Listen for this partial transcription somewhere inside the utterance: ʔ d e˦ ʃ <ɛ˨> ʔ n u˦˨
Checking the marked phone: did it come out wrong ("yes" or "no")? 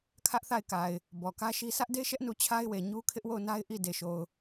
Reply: yes